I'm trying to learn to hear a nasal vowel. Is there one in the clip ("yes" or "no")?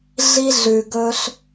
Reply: no